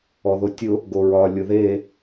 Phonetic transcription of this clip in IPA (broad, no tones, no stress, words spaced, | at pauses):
ɔðotʲʊ | ɡoɹɒ lʲʊðe